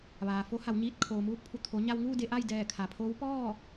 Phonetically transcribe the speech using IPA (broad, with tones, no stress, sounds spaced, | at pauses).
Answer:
ʋ aː˩ f o˧˥ h a˩˧ w ɲ iː˧ t̚ kʰ oː˩ m uː˧˥ k̚ pʰ u˩ t̪ʰ o˩˧ ɲ a˧ w ŋ uː˥˨ d e˧ ʔ a˥˨ j d ɛː˧˩ kʰ a˩ pʰ oː˧˥ w p ɔː˥˨